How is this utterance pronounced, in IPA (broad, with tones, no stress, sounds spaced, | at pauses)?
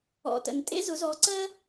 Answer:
ɔ̰˨ t ə̰˨ n tʼ ḛ˦ z ʊ˨˦ z ɔ˨˦ ǀ ɜ˦